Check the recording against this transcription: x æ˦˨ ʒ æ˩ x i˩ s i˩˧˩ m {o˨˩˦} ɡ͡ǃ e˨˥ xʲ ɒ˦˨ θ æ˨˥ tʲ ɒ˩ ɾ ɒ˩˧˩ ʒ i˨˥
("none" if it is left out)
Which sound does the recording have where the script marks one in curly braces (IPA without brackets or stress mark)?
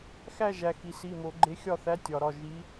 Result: o˨˩˦